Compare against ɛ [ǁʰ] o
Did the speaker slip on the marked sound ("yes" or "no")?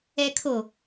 yes